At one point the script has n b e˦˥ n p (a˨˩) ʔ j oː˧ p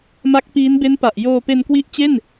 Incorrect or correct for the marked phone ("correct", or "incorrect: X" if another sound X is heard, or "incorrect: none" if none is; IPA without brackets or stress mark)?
correct